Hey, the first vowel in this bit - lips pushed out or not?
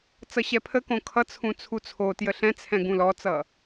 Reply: no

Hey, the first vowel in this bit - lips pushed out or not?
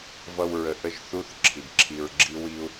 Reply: no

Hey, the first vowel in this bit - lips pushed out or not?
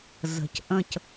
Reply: no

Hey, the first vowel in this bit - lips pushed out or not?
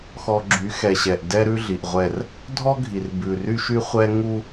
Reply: yes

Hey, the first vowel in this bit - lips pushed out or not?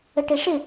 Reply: no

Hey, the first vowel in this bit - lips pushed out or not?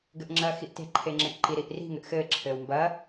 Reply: no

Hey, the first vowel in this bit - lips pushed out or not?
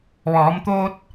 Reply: yes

